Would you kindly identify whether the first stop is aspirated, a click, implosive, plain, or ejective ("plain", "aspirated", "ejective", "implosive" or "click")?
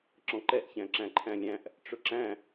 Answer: click